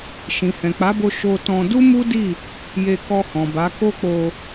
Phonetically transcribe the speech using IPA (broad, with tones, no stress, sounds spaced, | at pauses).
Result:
ʃ ĩ˨ h ɛ̃˨ k͡p a˨˦ b o˧ ʃ o˧ t ɔ̃˧ d u˦ m u˦ d i˦˨ | j e˧ k ɔ˧ h ɔ̃˨ b a˨˦ k o˦ k͡p o˧